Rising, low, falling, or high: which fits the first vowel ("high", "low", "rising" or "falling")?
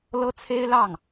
high